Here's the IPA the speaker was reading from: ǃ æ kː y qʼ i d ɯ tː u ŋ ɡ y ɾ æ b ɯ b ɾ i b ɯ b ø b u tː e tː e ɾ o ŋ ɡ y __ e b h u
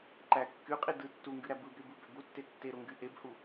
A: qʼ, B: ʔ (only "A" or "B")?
B